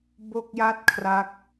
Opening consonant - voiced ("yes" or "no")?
yes